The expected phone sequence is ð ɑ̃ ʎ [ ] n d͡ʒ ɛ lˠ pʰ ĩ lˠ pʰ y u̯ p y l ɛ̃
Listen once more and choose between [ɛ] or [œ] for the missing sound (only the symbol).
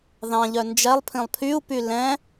œ